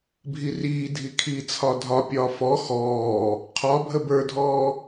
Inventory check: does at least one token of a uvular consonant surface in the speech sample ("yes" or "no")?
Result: yes